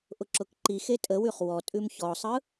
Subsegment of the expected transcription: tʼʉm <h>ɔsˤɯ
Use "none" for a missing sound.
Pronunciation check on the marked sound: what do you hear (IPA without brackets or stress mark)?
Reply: ç